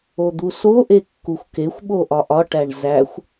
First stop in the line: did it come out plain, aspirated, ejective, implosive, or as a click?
plain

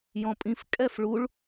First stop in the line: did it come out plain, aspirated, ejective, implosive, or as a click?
ejective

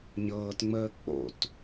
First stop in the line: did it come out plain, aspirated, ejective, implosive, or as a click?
plain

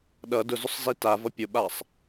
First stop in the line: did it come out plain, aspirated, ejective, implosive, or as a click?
implosive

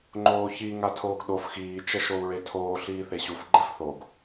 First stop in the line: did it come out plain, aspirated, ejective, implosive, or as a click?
click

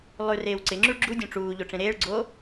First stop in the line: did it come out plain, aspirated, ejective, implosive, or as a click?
click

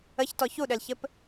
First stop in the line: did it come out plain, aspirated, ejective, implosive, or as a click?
plain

